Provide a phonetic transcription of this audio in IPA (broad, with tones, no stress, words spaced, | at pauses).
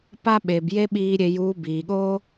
pa˥ɓe˩b je˥ɓiː˧ ɾʲe˧juː˧˥ biː˩ɠoː˥